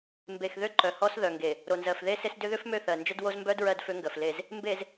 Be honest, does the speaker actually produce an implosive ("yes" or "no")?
no